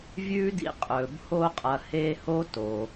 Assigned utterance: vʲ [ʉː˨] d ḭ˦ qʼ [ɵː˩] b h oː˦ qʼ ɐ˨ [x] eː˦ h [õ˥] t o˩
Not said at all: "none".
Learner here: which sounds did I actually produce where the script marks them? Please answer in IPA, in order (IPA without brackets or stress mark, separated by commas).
ʉː˥, ɵː˩, h, o˥